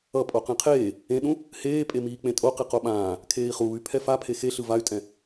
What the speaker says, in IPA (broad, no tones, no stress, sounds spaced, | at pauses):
ʌ pʼ o q ẽ qʰ eː | ẽ ɗ ũ | h eː pʼ e m iː k͡p ẽ tʼ o q i q o ɓ ãː | kʰ eː i̯ χ uː y̯ pʰ ɛ f a pʰ e x e ɬ ɯ v a y̯ tʼ ɛ̃